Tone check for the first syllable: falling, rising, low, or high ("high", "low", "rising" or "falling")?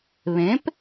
rising